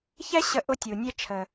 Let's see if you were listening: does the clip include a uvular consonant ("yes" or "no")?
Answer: no